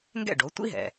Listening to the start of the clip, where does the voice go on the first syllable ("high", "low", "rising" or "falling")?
falling